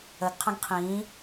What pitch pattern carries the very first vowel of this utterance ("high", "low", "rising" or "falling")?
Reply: rising